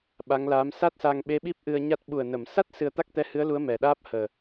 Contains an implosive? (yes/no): yes